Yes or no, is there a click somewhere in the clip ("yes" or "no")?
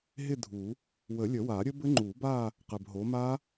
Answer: yes